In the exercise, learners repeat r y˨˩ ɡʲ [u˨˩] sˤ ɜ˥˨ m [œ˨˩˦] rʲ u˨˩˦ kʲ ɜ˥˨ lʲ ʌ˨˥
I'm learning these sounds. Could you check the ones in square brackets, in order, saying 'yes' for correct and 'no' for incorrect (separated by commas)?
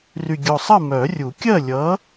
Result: no, yes